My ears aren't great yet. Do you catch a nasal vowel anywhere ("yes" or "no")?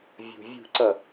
no